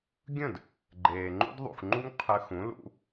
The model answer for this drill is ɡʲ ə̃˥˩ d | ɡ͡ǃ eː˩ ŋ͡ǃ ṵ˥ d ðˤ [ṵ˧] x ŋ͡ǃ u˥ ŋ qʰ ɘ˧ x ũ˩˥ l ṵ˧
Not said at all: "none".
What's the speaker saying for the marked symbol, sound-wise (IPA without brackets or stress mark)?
ṵ˩